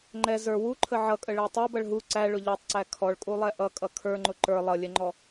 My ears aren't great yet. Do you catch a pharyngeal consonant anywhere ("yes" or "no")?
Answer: yes